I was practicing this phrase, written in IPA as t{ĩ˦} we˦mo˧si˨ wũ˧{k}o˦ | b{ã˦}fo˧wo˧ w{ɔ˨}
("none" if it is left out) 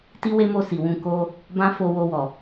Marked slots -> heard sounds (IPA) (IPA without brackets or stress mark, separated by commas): i˦, k, ã˦, ɔ˨